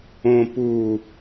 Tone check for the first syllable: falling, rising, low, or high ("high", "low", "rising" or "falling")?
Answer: low